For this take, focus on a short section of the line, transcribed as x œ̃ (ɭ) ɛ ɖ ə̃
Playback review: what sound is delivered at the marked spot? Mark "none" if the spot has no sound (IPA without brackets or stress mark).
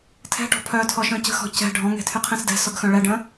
ɭ